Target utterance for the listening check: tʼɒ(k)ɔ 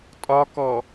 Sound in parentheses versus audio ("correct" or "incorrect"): correct